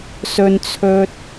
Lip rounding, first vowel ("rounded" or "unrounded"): rounded